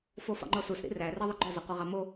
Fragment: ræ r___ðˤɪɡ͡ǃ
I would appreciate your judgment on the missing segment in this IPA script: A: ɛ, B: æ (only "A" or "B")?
A